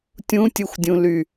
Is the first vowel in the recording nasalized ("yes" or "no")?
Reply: yes